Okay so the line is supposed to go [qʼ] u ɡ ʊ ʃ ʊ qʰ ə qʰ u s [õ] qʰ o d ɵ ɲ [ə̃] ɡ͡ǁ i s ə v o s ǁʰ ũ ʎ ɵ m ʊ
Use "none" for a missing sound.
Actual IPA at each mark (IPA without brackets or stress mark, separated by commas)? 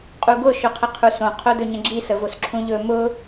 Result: qʼ, õ, ə̃